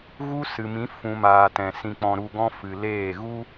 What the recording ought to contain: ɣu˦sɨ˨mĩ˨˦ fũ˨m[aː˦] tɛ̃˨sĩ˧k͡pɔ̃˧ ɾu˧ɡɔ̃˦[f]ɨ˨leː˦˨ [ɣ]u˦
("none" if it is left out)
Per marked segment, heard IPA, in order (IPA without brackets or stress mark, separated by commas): aː˨, f, ɣ